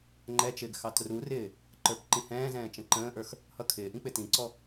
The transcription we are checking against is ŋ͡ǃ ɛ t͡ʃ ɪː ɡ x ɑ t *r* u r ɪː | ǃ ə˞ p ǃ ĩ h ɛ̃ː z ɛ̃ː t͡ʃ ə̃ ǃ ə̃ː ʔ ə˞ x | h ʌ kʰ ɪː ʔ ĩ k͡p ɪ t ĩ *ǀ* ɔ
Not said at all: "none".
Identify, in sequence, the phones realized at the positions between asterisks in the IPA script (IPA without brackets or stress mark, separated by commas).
r, ǀ